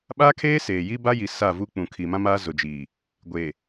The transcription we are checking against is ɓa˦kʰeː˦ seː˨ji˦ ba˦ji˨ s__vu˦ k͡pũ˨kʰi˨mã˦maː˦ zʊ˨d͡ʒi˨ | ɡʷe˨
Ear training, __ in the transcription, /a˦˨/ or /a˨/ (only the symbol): a˦˨